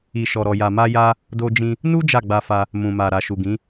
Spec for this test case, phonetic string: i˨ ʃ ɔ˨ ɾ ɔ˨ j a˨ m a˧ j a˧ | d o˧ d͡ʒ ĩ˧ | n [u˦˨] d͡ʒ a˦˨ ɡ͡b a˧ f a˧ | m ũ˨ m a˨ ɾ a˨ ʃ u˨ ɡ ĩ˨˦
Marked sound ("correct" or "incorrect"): incorrect